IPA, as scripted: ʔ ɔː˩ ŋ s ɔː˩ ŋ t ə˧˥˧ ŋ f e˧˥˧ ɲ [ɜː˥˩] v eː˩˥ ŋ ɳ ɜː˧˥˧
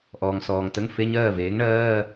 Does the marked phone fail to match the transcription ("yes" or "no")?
no